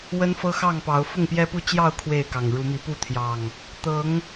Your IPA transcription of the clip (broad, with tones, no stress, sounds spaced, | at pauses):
w ə˦ n f ɤ˦ x ɑ˥˨ ŋ p ɑ˨˦ ʊ̯ f ʊ˥˨ ŋ p j ɛ˦ p u˦ t͡ɕ j ɑ˥˨ ʊ̯ kʰ w e˥˨ ɪ̯ k ɑ˨˩ ŋ ɻ u˨˦ m i˨˦ p u˥˨ t̪ʰ j ɑ˨˩ ŋ | t̪ ɤ˨˦ ŋ